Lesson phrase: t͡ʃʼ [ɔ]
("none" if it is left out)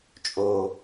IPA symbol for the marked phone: o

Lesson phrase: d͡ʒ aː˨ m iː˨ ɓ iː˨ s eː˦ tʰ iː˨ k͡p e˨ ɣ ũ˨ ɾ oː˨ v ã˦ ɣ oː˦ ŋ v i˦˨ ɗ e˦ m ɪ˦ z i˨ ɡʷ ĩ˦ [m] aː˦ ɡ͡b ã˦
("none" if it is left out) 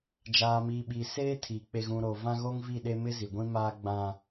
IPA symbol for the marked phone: m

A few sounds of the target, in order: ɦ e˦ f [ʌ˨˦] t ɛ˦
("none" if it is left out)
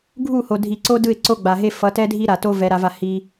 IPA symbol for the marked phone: ʌ˨˦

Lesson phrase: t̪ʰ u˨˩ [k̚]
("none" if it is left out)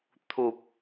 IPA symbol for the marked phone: p̚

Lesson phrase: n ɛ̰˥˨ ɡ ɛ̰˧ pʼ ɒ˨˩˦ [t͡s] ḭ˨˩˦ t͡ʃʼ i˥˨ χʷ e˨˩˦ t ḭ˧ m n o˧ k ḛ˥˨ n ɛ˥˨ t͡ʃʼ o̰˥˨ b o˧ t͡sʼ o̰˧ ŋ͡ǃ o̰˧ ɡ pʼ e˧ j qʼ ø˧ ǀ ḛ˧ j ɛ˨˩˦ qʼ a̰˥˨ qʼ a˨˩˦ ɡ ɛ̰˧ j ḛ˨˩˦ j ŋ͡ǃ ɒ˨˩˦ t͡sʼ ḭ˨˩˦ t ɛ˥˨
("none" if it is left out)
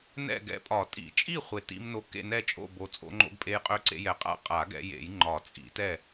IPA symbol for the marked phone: tʼ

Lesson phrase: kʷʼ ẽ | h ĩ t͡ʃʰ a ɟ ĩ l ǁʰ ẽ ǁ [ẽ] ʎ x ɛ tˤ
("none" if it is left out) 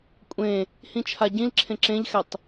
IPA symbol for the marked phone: ẽ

